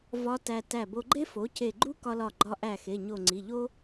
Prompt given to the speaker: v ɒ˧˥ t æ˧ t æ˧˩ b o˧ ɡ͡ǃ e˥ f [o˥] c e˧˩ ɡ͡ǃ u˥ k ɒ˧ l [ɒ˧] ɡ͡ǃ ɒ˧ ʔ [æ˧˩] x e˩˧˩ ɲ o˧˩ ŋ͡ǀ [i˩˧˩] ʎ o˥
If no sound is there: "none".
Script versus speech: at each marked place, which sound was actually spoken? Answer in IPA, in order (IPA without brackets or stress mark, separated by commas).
o˩˥, ɒ˧˩, æ˧˩, i˩˧˩